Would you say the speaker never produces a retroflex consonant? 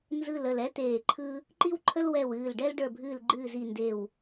no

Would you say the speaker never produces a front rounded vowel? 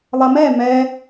yes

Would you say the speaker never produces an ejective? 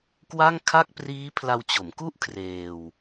yes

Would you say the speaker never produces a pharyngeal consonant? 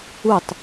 yes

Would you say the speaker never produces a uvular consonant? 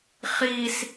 no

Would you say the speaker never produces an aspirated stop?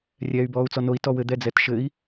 yes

